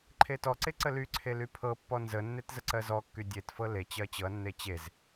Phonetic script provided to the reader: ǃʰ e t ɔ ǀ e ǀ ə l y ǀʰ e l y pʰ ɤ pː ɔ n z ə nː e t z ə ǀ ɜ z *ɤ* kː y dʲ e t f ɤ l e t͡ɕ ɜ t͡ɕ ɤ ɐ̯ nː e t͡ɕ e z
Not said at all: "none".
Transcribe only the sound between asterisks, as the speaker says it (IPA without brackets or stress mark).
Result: ɔ